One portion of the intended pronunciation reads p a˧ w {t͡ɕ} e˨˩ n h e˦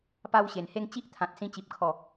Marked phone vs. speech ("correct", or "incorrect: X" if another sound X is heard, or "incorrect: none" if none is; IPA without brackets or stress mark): incorrect: ɕ